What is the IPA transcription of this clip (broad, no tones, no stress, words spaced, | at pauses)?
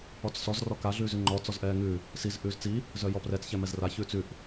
ɔt͡ssɔz rɔka ɮʉːzʉŋ͡ǃɔ t͡sɔzʔɛːŋʉ | siz ʔʉːzt͡si | zœjɔprɛt͡s çɛmɛzra çʉːt͡sʉʔ